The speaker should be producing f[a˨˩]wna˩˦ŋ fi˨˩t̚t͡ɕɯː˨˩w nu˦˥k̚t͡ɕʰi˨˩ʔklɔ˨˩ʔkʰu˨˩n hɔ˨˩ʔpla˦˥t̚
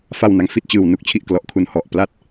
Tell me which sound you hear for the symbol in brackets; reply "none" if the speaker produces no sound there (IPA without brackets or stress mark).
a˨˩